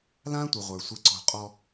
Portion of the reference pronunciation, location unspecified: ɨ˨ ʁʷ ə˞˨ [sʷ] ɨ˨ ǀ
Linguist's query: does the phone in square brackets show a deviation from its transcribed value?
no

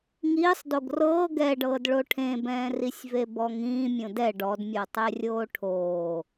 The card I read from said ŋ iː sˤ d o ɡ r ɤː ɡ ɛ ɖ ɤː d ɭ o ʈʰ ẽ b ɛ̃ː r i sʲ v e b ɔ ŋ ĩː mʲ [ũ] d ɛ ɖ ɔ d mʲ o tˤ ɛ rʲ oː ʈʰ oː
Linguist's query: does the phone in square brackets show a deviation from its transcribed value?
yes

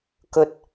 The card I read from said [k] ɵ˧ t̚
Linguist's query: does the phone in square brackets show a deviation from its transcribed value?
no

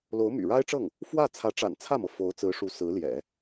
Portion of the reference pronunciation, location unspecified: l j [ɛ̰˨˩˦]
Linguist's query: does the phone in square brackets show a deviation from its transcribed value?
no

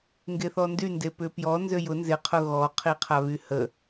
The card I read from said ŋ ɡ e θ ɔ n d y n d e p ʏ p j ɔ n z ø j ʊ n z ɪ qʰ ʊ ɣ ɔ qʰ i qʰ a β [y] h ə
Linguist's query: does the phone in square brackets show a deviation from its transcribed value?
no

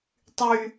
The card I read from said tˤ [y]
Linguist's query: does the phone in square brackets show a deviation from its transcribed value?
no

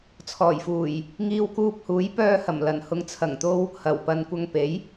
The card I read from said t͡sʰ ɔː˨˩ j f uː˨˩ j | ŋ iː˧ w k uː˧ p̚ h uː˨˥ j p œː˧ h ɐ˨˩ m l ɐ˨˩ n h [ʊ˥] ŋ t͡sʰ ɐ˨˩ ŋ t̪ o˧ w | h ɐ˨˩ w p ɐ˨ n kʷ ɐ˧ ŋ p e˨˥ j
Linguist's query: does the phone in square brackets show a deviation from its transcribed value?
yes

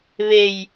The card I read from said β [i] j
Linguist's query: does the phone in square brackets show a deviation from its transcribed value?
yes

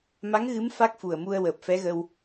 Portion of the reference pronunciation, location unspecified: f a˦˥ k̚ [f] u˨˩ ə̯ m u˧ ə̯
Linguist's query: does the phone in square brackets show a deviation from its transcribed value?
no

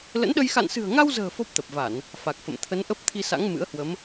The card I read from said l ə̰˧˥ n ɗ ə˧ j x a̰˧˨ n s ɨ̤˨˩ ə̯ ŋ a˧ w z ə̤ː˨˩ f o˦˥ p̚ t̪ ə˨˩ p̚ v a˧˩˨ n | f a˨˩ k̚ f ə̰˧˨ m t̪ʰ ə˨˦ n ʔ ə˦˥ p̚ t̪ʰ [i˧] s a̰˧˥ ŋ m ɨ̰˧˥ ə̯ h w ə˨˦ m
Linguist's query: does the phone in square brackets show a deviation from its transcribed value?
no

